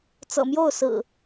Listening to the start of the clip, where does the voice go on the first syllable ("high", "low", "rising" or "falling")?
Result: low